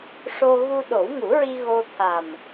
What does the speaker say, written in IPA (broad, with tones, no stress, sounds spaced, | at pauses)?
ʂ o˧ ɣ u˧ ɗ o˨˩˦ w ŋ u˨˩˦ ɹ i˧ ɣ o˧ t̪ʰ a˨˩ m